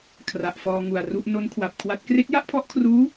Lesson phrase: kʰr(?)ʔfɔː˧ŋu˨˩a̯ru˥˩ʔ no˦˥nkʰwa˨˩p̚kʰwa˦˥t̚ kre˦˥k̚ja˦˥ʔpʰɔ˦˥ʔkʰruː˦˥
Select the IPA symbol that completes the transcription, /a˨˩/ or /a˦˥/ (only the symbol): a˨˩